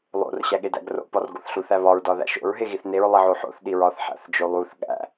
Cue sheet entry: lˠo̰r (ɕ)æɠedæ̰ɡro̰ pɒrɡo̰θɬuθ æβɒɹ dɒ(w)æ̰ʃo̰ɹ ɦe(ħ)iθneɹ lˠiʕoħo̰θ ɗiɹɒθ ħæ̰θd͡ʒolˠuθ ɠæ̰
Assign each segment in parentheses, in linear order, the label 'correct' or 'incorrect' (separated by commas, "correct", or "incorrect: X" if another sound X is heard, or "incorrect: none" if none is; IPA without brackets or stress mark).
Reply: correct, incorrect: ð, incorrect: ɣ